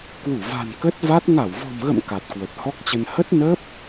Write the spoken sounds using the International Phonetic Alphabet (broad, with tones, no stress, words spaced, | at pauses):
kwu˧˩va̤˨˩n kə˦˥t̚va˦˥t̚ ŋa˧˩wvɔ̤˨˩mɣə̰˧˨m ka˨˩t̚kwə˨˩t̚hɔ˦˥k̚t͡ɕə˧n hə˦˥t̚nəː˦˥p̚